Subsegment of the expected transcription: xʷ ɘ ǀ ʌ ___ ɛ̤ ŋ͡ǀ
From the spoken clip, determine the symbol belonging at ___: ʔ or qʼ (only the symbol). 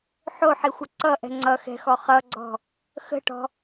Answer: ʔ